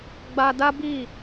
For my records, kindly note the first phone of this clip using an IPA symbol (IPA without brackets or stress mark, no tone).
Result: ɡ͡b